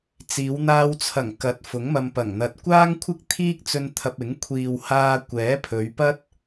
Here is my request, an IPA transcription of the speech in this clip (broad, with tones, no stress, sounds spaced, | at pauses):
t͡s iː˨˧ w n̪ aː˧ w t͡sʰ ɐ˨˩ ŋ k ɐ˨˥ t̚ f ʊ˨˥ ŋ m ɐ˧ m p ɐ˨˩ ŋ n̪ ɐ˧ t̚ kʷ aː˥ ŋ kʷʰ ɪ˥ k̚ t̪ʰ iː˥ k̚ t͡s ɵ˧ n t̪ʰ ɐ˧ p̚ ɪ˨˥ ŋ kʷʰ iː˨ w h aː˧ kʷ ɛː˨˥ pʰ ɵ˨˧ ɥ p ɐ˥ t̚